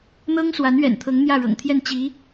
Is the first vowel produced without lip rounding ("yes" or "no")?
yes